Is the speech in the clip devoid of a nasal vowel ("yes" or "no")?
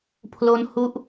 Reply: yes